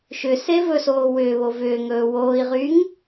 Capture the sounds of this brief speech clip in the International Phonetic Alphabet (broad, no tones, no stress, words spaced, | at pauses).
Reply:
ʃʏ sevɵsoː wʏːβo vʏːŋɵː woːi̯ʁyːŋ